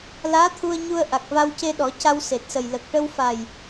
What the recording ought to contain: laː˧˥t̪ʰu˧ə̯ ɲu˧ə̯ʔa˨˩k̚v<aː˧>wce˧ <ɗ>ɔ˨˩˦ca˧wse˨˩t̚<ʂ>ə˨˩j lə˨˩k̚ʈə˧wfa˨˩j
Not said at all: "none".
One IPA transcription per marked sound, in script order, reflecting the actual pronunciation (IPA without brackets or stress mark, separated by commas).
a˧, ɗ, s